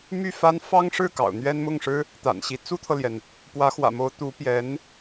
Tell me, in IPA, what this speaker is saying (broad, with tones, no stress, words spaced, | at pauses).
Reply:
my˥˩fa˥n fɑ˥ŋʂɻ̩˥˩ kɑ̰˨˩ʊ̯n̪ɥɛ˥nmʊ˥˩ŋʂɻ̩˥ | t̪a̰˨˩nɕi˧˥ t͡su˥t̪ʰɤ˨ljɛ˩n | pwä˧˥xwä̰˨˩mo˧˥ʊ̯ t̪u˧˥pjɛ˧˥n